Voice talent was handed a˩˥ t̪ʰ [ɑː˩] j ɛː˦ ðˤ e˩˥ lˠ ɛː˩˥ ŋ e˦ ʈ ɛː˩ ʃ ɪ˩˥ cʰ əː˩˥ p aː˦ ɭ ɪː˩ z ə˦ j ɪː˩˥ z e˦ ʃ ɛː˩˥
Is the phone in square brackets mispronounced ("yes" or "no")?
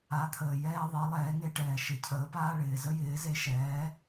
yes